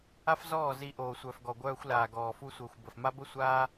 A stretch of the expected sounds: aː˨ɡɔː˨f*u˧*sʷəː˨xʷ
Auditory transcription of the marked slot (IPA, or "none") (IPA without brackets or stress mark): u˧